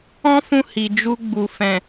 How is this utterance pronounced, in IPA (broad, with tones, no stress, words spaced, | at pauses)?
ɔ̃˦fũ˧ hi˨ d͡ʒu˧ ɡ͡bu˨ fɛ̃˨